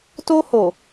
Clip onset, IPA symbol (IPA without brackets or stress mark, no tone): t